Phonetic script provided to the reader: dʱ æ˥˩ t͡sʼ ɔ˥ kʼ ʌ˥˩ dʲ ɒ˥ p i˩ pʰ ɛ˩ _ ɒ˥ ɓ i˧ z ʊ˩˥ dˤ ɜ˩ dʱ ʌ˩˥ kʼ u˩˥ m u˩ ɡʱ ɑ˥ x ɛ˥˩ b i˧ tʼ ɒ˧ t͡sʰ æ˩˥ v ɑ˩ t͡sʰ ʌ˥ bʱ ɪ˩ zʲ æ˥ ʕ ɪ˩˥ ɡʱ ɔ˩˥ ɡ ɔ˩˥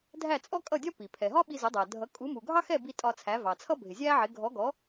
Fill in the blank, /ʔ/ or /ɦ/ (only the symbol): ɦ